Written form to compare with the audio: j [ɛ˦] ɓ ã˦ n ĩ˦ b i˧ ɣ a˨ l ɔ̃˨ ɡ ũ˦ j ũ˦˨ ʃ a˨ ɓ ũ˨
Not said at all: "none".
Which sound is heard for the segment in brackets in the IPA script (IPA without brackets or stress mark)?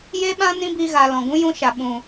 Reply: e˦